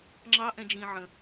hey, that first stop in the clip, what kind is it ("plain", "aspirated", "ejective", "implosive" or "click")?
click